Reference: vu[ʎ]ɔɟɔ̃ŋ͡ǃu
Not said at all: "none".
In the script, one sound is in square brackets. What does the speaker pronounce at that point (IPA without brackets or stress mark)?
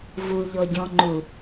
ʎ